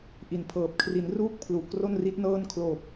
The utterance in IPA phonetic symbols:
ʔ i˨˩ n pʰ ɤː˨˩ p̚ kʰ r i˩˦ n r uː˥˩ k̚ pʰ l u˨˩ ʔ k r o˥˩ n r i˦˥ t̚ n ɤː˥˩ n kʰ l oː˨˩ p̚

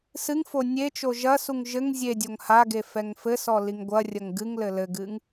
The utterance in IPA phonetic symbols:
s ɨ ŋ f o nʲ e t͡ʃ o ʒ ɐ s u ŋ ʒ ɘ ŋ zʲ e dʲ o ŋ h a ɡ e f ɛ ŋ f ɘ s ɔ l i ŋ ɡʷ ɐ rʲ ɐ ŋ ɡ ɨ ŋ l ɘ l ɘ ɡ ɨ ŋ

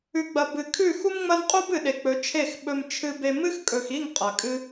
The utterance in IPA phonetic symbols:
ʉ˨ ɡ͡b ɐ˨ b ɨ˨ kʰ ʉ˦˨ x u˦ m ŋ͡m ɐ˦ n qʼ u˦ b ɨ˨ ɗ e˨ k͡p ɵ˨˦ t͡ʃʰ e˦˨ x ɓ ɵ˧ m t͡ʃʰ ɨ˧ b e˧ m ɨ˦ x kʼ ɵ˨ x i˦˨ ŋ qʼ ɐ˨ kʼ ɨ˦

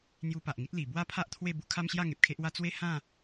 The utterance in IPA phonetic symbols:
n̪ j u˧ p a˨ ʔ ŋ i˦ t̚ l i˨˩ b w a˦ pʰ a˦ ʔ t̪ʰ w e˥˧ b u˦ kʰ a˦ m ɕ j a˥˧ ŋ e˨ p̚ kʰ e˦ ʔ w a˦ t͡s w e˥˧ h ã˥˧

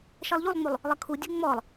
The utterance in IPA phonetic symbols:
ʃ ɜ lˠ ʎ u lˠ ŋ͡m u lˠ | lˠ ə kʰ u dʲ ɜ ŋ͡m ɔ lˠ

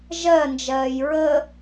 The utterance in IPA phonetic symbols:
ʒ ɜ n d͡ʒ ɜː j ɹ ə

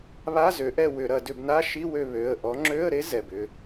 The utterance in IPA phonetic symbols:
β a˧˥˧ z ø˨˦ ʔ ɛ˦˨ w ʏ˧˩˧ ɾ ɐ˧˩˧ d ʏ˧˩˧ b n a˧˥˧ ʃ i˧˥˧ w ø˦˨ β ø˩˧˩ ə̯ ʔ ɔ˨˦ ŋ͡ǁ ø˧˥˧ ə̯ ɾ e˦˥ z ɛ˩˧˩ b ʏ˦˨

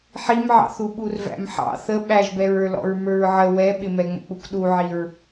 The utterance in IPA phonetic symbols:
ħ i m ʕ ɑ̰ θ u ɓ u r v æ̰ m ħ ɑ̰ θ ə ɓ æ ʒ b ɛ ɹ ə˞ l ɔ̰ ɹ m ə˞ ɹ ʕ ə w ɛ ɓ ɪ m ɛ ŋ͡m ə̰ k͡p u k ɗ u ʕ i ɹ

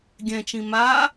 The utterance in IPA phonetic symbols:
ɡʲ ɛ̃ t͡ʃ ĩ m a

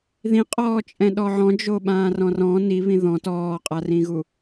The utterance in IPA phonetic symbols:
ð ĩ qʼ ɔː t͡ʃʼ ɛ̃ ɗ ɔ ʕ ɔ̃ d͡ʒ o ɓ ãː r ɔ̃ r ɔ̃ n i β ĩ ð ɔ̃ t ɔː qʼ a r ĩ ɣ u

